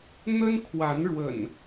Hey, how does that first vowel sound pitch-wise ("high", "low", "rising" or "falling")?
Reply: high